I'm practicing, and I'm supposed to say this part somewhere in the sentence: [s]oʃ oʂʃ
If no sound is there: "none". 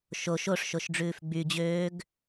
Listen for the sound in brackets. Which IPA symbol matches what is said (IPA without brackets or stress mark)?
ʃ